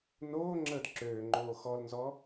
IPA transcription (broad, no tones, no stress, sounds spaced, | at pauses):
n oː ŋ͡ǁ əː d ǁ øː ŋ͡ǃ oː x ɔ l n z ɔ